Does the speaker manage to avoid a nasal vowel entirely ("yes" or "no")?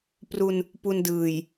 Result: yes